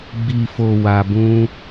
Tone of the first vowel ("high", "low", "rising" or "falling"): low